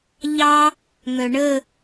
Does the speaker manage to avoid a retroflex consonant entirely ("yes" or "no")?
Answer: no